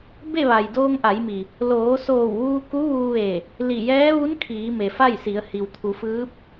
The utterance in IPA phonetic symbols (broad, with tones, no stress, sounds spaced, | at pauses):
b e˥˨ ʋ a˩ j d oː˧ ŋ ʔ a˩˧ j m i˩ | l oː˩˧ s oː˧˩ w ʋ uː˧ k u˧˥ ʋ uː˧ ʋ e˧˩ | l i˧˩ j ɛː˧˥ ʋ u˧˥ n kʰ iː˩˧ m e˩ f a˥˨ j s i˩˧ ə̯ h i˩ w t̪ʰ u˩˧ f ɯː˧˥ p̚